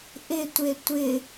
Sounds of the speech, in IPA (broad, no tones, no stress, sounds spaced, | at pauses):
ʔ ɪ tʷ e tʷ ɪ